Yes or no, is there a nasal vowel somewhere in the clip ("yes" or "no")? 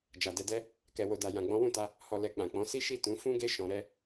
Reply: yes